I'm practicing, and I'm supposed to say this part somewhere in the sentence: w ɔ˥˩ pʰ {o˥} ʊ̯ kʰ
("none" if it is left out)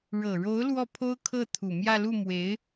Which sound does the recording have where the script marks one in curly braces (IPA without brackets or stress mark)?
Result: o˥